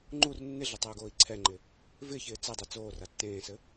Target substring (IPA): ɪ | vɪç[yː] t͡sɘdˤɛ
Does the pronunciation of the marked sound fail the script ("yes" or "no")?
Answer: yes